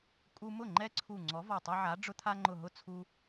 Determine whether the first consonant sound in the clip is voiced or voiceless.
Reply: voiceless